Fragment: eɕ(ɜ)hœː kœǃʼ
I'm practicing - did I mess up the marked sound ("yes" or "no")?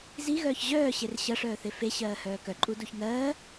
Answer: yes